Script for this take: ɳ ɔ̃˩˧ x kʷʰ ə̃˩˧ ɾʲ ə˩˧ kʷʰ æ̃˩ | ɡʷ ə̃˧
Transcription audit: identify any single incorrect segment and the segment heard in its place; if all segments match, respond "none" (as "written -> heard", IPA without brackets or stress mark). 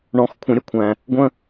none